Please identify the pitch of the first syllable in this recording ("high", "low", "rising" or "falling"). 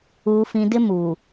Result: low